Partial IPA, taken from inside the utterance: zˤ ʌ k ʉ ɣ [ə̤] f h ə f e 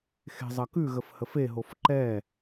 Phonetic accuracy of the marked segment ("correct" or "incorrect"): incorrect